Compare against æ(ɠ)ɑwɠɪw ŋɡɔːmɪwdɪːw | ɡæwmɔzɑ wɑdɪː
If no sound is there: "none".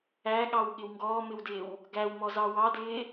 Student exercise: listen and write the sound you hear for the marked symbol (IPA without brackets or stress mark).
ɠ